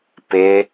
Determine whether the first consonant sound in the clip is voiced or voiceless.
voiceless